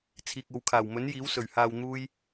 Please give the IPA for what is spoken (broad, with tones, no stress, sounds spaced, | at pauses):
t͡sʰ iː˨ k̚ o˨˧ w kʰ aː˨˩ w m ɵ˨˥ n j iː˨˥ w s ɵ˨˩ ɥ h aː˧ w n̪ uː˥ j